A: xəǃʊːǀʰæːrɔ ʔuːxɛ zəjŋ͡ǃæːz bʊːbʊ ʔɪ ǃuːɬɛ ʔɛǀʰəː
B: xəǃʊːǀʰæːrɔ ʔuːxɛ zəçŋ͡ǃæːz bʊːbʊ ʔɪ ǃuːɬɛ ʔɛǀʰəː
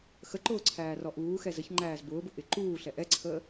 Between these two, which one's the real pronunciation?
B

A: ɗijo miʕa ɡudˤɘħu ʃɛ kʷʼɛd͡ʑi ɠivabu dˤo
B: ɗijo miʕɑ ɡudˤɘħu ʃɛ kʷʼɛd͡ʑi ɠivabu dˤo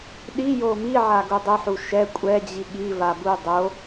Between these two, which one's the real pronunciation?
A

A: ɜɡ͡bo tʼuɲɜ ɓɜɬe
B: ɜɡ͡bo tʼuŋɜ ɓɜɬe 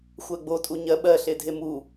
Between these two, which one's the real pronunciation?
A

